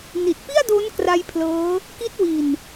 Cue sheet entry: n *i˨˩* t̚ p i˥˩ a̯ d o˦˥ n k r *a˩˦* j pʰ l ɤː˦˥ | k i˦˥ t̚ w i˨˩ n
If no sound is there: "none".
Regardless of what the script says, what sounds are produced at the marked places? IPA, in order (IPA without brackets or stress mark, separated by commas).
i˨˩, a˧